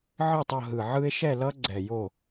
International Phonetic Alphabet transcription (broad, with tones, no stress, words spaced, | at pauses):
ʕɯ˥˩tˤʌ˥˩ɦɯ˨˩ʕɯ˦e̯ ʃɛ˥˩lʌ˦ɡ͡ǀɛ˨˩ jo˥˩